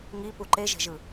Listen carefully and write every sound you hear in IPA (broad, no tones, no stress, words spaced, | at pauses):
ŋipu ǃeʒe̤ʒɯ